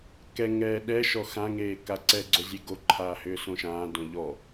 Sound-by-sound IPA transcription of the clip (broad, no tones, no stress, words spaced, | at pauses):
kɛ ŋɛːɗɛʃɔ xãŋeː kaǀɛɡ͡ǀo zʲeɡoǃʰaː hʏːsõʃãːdõ ʎɔ